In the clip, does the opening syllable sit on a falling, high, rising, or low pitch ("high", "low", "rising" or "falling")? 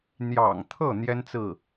low